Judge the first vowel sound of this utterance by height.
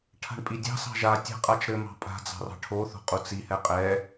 low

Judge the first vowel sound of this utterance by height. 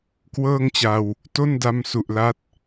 mid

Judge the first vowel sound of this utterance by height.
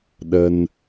mid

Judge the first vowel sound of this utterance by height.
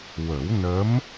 mid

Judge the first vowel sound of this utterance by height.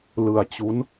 high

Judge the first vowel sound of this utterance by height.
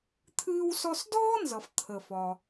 high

